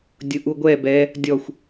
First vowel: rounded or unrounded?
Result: rounded